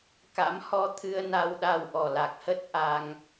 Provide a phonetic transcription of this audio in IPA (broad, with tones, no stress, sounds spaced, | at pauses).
k a̰˧˥ m h ɔ˧ t̪ʰ ɨ˧ ə̯ n a˧ w ɗ a˧ w ʔ ɔ˨˩ l a˨˩ k̚ h ə˦˥ t̚ ʔ a˧ ŋ